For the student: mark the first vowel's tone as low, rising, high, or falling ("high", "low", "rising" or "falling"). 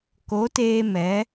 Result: rising